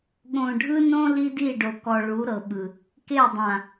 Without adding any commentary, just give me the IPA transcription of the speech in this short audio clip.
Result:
ɠ õ˨ ɖʱ ɯ˦ n õ˦ l i˦ d i˦˨ ɖ o˨ k ɔ˨ ɭ u˨˦ ɾ ɤ˨ ɓ ɯ˨ | k e˦˨ dˤ ã˨

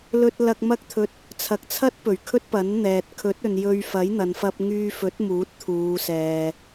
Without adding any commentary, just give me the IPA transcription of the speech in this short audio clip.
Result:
l ɵ˧ t̚ l ɐ˧ k̚ m ɐ˥ k̚ t̪ʰ ɵ˧ t̚ | t͡sʰ ɐ˨˥ k̚ t͡sʰ ɐ˥ t̚ p ɵ˨˩ ɥ kʰ ɵ˥ t̚ p ɐ˨˥ n n̪ ɛː˨ t̚ kʰ ɵ˨˥ t̚ ɵ˨ n j ɵ˧ ɥ f ɐ˨˥ j n̪ ɐ˨ n f ɐ˧ p̚ ŋ yː˧ f ɵ˨˥ t̚ m uː˨˥ t̚ t̪ʰ uː˨˧ s ɛː˨

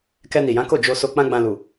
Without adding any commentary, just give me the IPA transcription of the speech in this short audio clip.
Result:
k ɛ˧ n i˨ j ã˨˦ k o˦˨ d͡ʒ o˧ s o˧ k͡p ã˦ ɡ͡b ã˧ l u˨

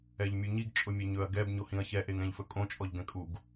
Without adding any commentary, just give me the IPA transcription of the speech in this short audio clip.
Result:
ɛ ʎ mʲ u ɲ i ɡ t͡ʃʼ ʊ mʲ ɛ ɲ ɵ ɐ̯ ɡ ɛ b ɲ o h ĩ ɐ̯ ç ɛ ʔ e ŋ ɛ̃ ʎ f ɵ kʼ õ t͡ʃʼ ɔ ʎ ɡ ɛ̃ kʼ u ɡ

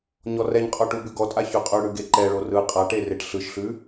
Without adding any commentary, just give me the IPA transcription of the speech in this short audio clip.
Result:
ɲ ɔ r ɛ ɲ qʼ ɔ ʈ u b ʉ ɡ ɔ tʼ a ç ʉ qʼ ʉ ɽ ʉ ɡ e ǃ ɛ ɭ o r ɯ qʼ a ʈ e r e ʈ ɬ ɯ ʃ ɬ ʉ

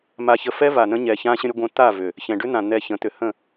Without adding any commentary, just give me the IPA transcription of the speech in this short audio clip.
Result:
m a˧ ç ə˧ f ɛ˦ v a˨ n ə̃˧ ɲ ɛ˨ ç ã˧ ɕ ə̃˧ ɾʲ ə˧ ɡʷ ə̃˧ t̪ a˦˨ v ʏ˨ | ç ɛ̃˨ ɖ ʏ˦ n̪ ã˨ n̪ ɛ˧ ç ə̃˨˦ t̪ ʏ˨ h ə̃˦˨

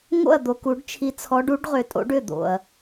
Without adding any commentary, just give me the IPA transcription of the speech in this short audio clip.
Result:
ŋ o̰˥˩ ɐ̯ d̪ o˨ k u˨˩˦ ɖ t͡ʃʰ i˨˥ t͡sʰ ɔ˨˥ ɖ u˨˥ ɖ ʁ ʏ˨˩˦ tʼ o̰˨˥ ɖ ʏ˥˩ d̪ o̰˨ ɐ̯

